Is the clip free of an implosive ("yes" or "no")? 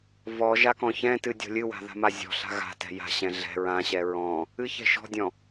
yes